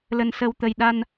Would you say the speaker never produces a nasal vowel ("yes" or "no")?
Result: yes